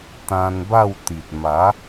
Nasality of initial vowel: nasal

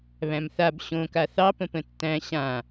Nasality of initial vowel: nasal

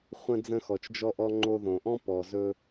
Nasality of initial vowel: nasal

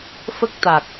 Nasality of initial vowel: oral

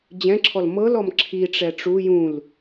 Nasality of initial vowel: nasal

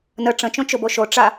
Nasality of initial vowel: oral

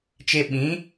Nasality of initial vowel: oral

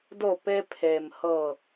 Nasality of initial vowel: oral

